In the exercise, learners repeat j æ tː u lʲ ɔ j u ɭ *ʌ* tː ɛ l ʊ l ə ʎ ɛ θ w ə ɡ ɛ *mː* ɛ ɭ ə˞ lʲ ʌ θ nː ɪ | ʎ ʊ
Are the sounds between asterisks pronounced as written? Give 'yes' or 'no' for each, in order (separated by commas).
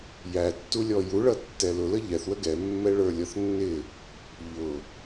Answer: yes, yes